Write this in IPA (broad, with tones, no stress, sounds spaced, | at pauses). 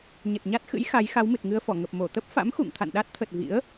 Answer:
ɲ ə˨˩ t̚ ɲ a˦˥ t̚ x ɨ̰˧˥ j x a˨˦ j x a˨˦ w m ɨ˨˩ t̚ ŋ ɨ˧ ə̯ f ɔ˧˩ ŋ ə˨˩ p̚ m o˧˩ t̪ ə˦˥ p̚ f a̰˧˥ m x ṵ˧˨ ŋ t̪ʰ a̰˧˨ n ɗ a˦˥ t̚ t̪ʰ ə˨˩ t̚ v ḭ˧˥ ə̯